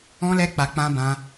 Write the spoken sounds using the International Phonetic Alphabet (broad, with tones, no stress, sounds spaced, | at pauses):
ɔ̃˦ l ɛ˦ k͡p a˧ k͡p ã˦ b ã˦